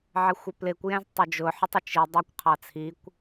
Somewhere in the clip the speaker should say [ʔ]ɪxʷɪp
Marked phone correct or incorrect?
incorrect